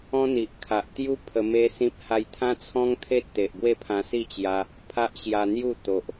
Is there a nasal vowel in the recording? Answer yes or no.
yes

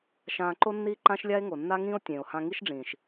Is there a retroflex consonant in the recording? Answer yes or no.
yes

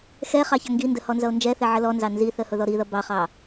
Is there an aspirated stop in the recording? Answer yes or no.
no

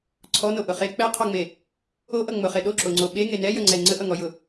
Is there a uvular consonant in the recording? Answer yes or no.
yes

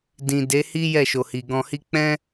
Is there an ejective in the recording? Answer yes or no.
no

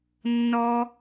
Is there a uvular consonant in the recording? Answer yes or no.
no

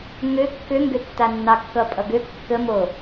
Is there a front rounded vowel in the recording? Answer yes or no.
yes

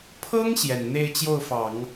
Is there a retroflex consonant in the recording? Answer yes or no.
no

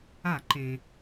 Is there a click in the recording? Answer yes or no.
yes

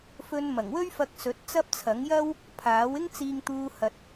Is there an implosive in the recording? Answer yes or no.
no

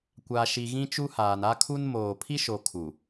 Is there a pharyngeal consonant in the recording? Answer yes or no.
no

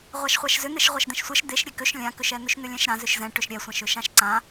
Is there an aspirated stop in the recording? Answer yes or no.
no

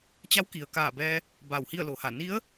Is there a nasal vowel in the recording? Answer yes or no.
no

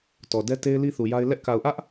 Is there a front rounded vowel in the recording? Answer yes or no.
no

